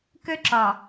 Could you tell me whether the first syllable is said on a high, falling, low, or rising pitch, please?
high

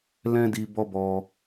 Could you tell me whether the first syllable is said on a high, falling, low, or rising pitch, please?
high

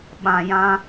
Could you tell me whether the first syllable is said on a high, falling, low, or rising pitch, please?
low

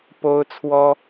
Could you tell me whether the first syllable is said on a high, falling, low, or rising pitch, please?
high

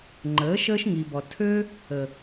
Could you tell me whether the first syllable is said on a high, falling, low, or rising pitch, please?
rising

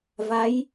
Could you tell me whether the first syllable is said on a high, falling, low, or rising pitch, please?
rising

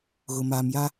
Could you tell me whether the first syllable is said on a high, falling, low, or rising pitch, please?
low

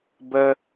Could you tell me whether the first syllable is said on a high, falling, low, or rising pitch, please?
high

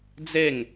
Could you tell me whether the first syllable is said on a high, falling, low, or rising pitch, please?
falling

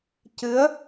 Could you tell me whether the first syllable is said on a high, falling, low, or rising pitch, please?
rising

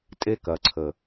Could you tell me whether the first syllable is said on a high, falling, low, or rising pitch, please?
high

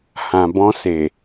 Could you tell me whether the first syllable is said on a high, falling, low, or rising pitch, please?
low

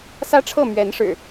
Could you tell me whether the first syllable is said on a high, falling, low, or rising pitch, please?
high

